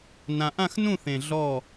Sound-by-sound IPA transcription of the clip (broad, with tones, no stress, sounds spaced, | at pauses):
n ã˨˩ ʔ ã˥˨ x n ũ˥˨ θ ẽ˨˩ ɮ ɔ˥˨